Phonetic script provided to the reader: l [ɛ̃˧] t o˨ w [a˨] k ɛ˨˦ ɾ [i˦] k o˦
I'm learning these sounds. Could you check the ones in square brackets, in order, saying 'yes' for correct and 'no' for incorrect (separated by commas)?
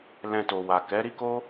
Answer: yes, yes, yes